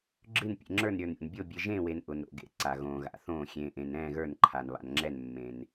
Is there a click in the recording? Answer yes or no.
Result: yes